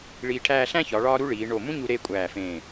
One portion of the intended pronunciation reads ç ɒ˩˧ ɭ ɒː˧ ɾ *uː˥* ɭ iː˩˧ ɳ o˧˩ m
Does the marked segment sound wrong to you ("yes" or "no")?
yes